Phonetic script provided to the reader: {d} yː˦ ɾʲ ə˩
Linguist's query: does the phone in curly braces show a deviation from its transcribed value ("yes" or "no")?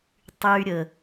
yes